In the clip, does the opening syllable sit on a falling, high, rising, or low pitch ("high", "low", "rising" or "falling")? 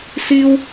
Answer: high